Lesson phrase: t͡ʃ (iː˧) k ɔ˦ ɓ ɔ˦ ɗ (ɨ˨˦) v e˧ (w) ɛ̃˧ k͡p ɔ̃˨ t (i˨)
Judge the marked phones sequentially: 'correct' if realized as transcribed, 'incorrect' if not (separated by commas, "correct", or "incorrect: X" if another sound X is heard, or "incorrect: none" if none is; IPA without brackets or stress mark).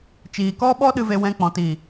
incorrect: iː˨, incorrect: ɨ˧, correct, correct